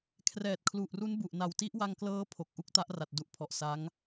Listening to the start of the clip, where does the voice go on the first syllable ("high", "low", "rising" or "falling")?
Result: low